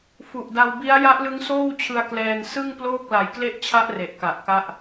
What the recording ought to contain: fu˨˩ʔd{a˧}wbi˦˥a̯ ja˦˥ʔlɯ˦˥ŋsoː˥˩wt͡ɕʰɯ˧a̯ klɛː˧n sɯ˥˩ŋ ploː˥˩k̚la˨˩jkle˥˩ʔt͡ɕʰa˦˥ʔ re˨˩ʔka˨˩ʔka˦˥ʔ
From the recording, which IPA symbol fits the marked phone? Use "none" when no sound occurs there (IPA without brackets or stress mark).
a˧